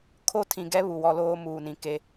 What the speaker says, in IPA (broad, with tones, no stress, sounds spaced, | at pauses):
kʰ o˦ tʰ ĩ˨ ɡ ɛ˦ β u˨ w ɔ˦ l oː˦ m uː˨ n ĩ˨ k e˦